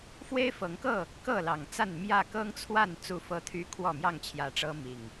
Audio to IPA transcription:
f w e˦ ɪ̯ f ɤ˨˦ ŋ k ɤ˥˨ | k ɤ˥˨ l ɑ˨˩ ŋ t͡s a˥˨ n m j ä˥˨ k ɤ˦ ŋ t͡sʰ w a˥˨ n t͡s u˥˨ f ɤ˦ t̪ʰ y˦ kʰ w ɔ˥˨ m j ɑ˥˨ ŋ t͡ɕʰ j ä˨˦ ʈ͡ʂ ɤ˦ m i˨˩ ŋ

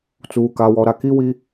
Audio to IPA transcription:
t͡s uː˨ k a˨ w ɔ˨ ɾ a˨ k i˦ w i˦

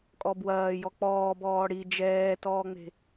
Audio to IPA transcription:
kʼ ɔ b w ɐː j ɔ k͡p ɔː b ɔː ɽ i d͡ʒ ɛː t ɔː ŋ͡m e̤

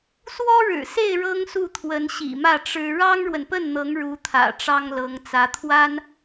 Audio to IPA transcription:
s w ɔ˥ ɻ ɻ̩˨˩ s e˥˩ ɪ̯ ɻ ɤ˥ ŋ s u˥˩ t̪ʰ w ə˧˥ n ɕ ḭ˨˩ m ä˥˩ ʈ͡ʂ ɻ̩˥ ɻ ɑ˥ ŋ ɻ w ə˨ n p ə˥˩ n n̪ ɤ˧˥ ŋ ɻ u˧˥ t̪ʰ ä̰˨˩ ʈ͡ʂ ɑ˥ ŋ l ɤ˧˥ ŋ t͡s ä˧˥ t̪ʰ w a˥ n

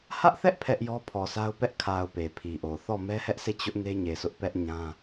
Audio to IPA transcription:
h ä˦ ʔ θ ɛ˦ ʔ pʰ ɛ˦ ʔ j ɔ˦ pʰ ɔ˨ sʰ a˦ ʊ̯ p ɛ˦ ʔ kʰ a˨ ʊ̯ p e˨ pʰ i˨ ʔ o˨ θ ɔ˦˨ m ɛ˦ h ɛ˦ ʔ s e˦˨ t͡ɕ ʊ˦ ʔ n e˦ ɲ e˨ sʰ ʊ˦ ʔ p ɛ˦ ʔ ɲ ã˦

